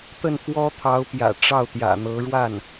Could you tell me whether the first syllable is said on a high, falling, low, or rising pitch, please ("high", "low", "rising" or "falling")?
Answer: falling